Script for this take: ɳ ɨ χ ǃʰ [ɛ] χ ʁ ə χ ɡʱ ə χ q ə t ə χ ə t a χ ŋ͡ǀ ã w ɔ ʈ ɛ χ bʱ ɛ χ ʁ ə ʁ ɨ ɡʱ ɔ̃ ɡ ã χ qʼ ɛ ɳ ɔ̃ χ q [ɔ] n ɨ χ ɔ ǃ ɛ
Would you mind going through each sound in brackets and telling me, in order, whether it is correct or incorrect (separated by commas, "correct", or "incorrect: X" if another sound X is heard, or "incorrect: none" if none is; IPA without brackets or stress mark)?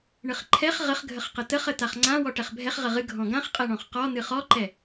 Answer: correct, correct